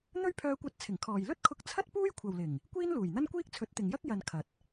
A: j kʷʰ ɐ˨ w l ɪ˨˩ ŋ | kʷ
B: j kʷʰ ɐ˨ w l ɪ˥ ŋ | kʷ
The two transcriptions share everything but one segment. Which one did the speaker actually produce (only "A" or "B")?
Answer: A